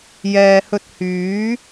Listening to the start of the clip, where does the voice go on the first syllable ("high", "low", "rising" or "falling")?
low